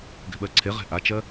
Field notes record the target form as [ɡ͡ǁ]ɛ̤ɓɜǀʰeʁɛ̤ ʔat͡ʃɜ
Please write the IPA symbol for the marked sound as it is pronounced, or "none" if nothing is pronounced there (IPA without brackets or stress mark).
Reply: ɡ